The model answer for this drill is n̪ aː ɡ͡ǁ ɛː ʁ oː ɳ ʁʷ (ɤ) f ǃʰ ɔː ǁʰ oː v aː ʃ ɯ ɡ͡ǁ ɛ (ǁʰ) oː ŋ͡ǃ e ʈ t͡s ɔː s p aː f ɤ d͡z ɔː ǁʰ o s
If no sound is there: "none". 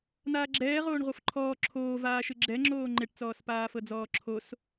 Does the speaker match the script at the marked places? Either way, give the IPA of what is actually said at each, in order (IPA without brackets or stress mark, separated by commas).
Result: ɤ, ŋ͡ǁ